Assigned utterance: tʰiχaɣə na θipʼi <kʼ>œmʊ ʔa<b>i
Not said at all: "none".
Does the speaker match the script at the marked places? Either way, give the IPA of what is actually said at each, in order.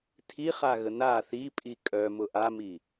kʼ, m

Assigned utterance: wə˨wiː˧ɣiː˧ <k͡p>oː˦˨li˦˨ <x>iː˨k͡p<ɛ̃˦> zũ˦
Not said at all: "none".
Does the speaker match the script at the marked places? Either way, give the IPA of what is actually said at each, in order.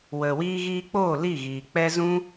k͡p, ɣ, ɛ˦

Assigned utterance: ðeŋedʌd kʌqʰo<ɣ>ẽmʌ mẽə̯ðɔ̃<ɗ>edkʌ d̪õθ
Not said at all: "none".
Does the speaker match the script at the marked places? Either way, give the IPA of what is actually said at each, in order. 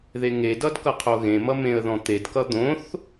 ɣ, t̪

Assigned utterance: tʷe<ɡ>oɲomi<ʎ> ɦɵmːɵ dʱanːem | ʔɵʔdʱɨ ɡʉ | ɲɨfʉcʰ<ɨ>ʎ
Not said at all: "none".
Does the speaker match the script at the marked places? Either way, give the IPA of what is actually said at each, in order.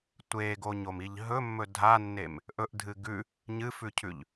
ɡ, ʎ, ʉ

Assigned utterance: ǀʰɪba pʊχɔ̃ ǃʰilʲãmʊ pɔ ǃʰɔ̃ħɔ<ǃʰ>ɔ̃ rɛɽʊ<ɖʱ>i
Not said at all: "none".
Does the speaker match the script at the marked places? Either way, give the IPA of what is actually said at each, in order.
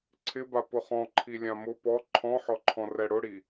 ǃʰ, ɽ

